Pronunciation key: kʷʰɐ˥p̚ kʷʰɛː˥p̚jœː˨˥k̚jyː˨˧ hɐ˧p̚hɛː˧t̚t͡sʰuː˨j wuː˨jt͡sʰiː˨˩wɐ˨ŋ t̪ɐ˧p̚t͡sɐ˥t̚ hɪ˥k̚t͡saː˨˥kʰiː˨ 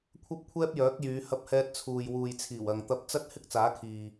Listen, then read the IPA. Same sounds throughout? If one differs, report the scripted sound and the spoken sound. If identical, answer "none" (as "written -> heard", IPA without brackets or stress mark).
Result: none